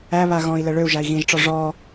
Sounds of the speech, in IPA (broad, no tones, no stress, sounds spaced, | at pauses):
æ β a ɣ ɔ̃ i̯ l ə ɭ ø u̯ ʒ a i̯ ɣ ĩ ʒ ʈ͡ʂ ɔ ʐ ɔ